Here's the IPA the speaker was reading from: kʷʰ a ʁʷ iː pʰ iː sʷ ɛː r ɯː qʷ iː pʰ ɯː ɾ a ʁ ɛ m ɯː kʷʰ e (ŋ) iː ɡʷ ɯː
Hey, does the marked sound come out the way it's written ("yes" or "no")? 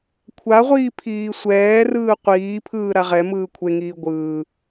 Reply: yes